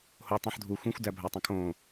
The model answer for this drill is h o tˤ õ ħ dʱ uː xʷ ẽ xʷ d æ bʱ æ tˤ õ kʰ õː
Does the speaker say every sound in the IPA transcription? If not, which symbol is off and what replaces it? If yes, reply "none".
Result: none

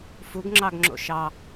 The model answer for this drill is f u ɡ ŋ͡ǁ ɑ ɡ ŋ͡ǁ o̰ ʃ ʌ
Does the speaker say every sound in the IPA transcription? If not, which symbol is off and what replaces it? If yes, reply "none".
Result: ʌ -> ɑ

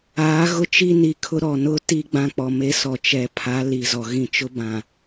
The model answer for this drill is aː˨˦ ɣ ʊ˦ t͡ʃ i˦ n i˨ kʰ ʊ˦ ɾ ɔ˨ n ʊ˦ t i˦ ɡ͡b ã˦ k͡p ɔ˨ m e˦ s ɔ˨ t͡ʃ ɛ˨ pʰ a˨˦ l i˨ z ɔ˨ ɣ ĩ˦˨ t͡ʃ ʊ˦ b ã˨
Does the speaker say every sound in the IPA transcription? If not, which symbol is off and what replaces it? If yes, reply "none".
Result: none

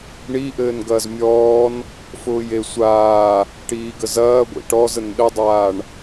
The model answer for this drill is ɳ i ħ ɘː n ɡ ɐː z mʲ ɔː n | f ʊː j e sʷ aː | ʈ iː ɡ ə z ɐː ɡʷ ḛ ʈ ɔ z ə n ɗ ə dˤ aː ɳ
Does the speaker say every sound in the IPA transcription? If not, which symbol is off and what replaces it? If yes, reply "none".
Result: ħ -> ʔ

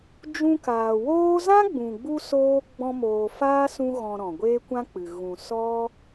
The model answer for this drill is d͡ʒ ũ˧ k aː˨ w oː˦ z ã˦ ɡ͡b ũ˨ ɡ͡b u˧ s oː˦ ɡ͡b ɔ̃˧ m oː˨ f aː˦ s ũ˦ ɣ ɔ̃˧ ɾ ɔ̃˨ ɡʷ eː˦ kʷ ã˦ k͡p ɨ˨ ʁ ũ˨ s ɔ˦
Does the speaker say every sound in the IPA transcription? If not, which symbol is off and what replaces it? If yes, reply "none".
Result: ʁ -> ɣ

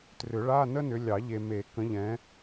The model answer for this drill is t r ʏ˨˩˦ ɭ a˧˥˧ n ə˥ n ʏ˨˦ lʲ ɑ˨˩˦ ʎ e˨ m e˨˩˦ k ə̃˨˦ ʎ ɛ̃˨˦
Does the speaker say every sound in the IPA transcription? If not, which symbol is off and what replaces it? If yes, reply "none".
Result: none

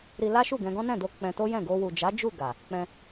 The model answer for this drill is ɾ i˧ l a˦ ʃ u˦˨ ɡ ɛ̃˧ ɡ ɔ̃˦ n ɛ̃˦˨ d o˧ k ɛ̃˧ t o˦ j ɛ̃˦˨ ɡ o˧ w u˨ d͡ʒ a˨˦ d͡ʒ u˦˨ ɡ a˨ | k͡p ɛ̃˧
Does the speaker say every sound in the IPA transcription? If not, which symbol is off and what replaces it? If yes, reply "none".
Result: k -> k͡p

